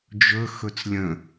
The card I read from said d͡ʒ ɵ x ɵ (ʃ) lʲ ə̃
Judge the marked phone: incorrect: t͡s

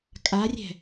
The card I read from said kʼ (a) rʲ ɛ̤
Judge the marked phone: correct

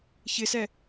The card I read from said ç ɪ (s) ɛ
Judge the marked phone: correct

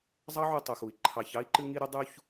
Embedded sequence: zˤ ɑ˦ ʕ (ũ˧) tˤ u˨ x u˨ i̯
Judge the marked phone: incorrect: u˧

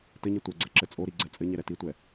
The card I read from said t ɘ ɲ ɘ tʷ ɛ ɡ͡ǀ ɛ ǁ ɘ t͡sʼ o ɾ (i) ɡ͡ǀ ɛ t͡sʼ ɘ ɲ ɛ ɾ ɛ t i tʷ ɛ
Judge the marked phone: correct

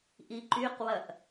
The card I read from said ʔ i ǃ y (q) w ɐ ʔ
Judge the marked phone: correct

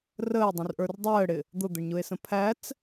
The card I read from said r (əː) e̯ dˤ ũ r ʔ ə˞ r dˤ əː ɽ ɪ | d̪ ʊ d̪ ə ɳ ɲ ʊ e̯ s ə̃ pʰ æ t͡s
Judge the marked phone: correct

